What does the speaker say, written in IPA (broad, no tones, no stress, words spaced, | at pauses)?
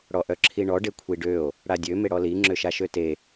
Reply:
ɽɔʔœǁʰiɳɔ ɖekʷʰiɖøo̯ | ɽadʲø meɽɔli ŋ͡ǁøʃaʃøte